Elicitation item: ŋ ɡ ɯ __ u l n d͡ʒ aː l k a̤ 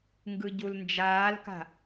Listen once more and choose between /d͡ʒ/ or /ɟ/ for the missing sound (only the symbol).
ɟ